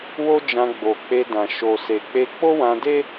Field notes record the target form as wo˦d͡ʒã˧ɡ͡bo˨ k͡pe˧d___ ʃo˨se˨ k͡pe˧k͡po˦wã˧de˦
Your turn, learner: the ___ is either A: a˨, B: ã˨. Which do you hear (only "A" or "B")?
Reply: B